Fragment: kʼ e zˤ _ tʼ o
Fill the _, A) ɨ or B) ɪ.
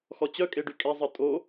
A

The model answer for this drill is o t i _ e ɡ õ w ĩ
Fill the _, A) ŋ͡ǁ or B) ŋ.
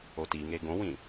B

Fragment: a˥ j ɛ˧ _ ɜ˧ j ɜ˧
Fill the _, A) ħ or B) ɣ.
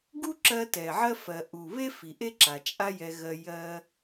B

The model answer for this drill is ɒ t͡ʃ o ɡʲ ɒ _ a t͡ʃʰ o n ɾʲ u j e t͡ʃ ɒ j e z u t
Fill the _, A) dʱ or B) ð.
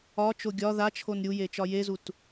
B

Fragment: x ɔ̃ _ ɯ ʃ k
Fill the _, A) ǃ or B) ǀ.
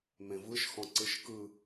B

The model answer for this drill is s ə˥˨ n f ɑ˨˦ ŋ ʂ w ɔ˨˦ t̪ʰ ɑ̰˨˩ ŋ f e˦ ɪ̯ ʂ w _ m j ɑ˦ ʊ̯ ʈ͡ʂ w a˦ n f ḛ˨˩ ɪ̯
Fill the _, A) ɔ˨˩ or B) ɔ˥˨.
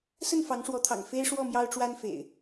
B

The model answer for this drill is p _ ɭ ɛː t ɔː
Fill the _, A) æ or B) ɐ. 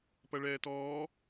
B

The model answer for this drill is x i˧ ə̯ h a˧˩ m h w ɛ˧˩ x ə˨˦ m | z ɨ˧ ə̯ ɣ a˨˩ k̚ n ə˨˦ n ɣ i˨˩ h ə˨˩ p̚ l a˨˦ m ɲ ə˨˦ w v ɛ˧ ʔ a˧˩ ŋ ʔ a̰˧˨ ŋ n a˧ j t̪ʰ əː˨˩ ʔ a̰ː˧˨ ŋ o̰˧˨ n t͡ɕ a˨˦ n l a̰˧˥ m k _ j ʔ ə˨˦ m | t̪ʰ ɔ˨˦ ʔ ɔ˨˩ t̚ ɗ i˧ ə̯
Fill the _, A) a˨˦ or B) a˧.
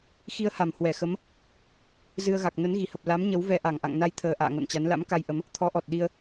B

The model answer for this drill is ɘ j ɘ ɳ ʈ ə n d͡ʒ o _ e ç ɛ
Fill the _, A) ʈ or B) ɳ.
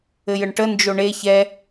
B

